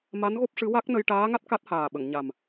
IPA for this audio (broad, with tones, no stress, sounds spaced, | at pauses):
m a˧˥ n ɣ o˦˥ p̚ ʂ ɨ˧˥ w a˦˥ k̚ n ə˧ j ʈ aː˧˥ ŋ a˦˥ t̚ k a˦˥ t̚ h aː˨˩ ɓ ə˨˩˨ ŋ ɲ a˨˩ m